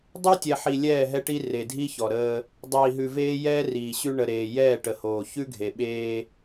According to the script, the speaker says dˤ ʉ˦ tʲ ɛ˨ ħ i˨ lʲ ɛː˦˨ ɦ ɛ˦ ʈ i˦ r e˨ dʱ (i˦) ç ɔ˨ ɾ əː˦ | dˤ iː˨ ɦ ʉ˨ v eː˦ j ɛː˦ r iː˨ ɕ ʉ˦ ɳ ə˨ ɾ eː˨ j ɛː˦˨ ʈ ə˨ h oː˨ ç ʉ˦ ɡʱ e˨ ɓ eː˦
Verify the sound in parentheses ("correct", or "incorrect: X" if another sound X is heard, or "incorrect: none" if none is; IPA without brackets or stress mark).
correct